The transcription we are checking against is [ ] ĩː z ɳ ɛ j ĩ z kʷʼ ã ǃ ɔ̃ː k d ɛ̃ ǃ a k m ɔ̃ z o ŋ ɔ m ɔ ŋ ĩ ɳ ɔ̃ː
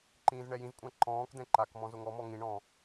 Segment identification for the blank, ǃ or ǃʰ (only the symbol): ǃ